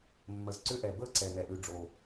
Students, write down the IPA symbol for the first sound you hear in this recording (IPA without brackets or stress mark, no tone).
mː